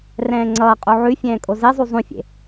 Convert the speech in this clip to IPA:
r ɛ̃ː ŋ͡ǀ ʌː qʼ u ʕ ʉ fʲ ɛ̃ː kʼ o z e zˤ u zˤ ũ fʲ ḛ

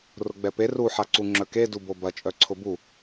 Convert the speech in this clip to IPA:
r ʊ ɡ͡b ɛ p e r u ħ a ǀ u ŋ͡ǁ œ k e d u b o b ɐ t͡ʃʼ œ ǀʰ ʊ b u

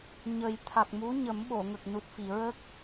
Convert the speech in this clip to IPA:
ɲ ə˨˩ j t̪ʰ a˨˩ k̚ m u˧˥ ɲ ə˨˩˦ m ɓ o˨˩˨ ŋ ə˨˩ k̚ n u˨˩ t̚ f i˨˩˨ ɹ ə˦˥ k̚

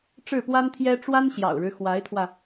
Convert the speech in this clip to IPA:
ʈ͡ʂ ɻ̩˥˩ p w a˥ n t̪ʰ j ɛ˥ ʈ͡ʂ w a˥ n ɕ j ɑ̰˨˩ ʊ̯ ɻ ɻ̩˦ x w a˧˥ ɪ̯ t̪ʰ w ä˧

